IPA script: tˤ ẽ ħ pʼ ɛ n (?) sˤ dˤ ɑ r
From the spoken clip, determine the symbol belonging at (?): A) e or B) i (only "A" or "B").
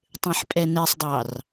A